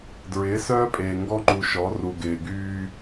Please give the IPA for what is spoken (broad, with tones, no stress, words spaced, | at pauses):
dɹɪː˨˦sœː˦pʼeː˨ ŋɡɔ˦ŋ͡ǃu˨ʃɔ˨˦ru˨ ɡɪː˨ɡyː˦